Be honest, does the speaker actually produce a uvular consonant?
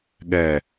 no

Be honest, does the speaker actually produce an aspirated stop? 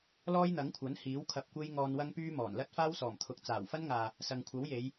yes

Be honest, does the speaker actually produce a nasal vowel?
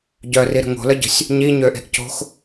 no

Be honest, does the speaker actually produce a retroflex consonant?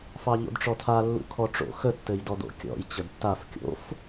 yes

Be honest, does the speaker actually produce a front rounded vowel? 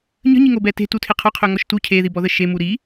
yes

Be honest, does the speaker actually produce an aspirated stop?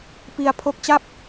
yes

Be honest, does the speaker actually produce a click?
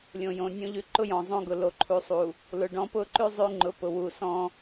yes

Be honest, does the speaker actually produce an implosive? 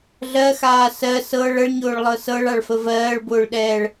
yes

